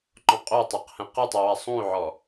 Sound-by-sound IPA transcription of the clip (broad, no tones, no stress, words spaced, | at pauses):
ǃɔ̃qʼou̯tˤeq hɛ̃qɯtˤi wasˤũy̯ʕɔ